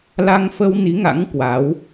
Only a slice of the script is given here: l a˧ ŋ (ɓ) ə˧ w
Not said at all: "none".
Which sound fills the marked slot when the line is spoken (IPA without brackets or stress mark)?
f